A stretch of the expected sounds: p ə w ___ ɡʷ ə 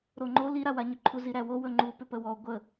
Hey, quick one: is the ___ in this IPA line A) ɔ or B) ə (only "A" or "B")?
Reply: A